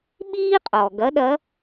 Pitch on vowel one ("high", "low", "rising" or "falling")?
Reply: high